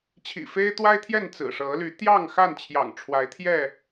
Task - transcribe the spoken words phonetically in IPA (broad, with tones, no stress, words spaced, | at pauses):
t͡ɕʰḭ˨˩fe˦ɪ̯t̪wa˦ɪ̯t̪ʰjɛ˥˨n t͡sɹ̩˨˩ʂɤ˨˦ly˨˦ t̪jɑ˥˨ŋxa˥˨nt͡ɕʰjɑ̰˨˩ŋ ʈ͡ʂʰwa˨˦ɪ̯t̪ʰjɛ˥˨